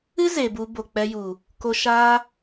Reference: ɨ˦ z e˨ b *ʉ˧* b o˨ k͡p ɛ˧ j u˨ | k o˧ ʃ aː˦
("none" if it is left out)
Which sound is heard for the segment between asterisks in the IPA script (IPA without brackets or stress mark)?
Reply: u˧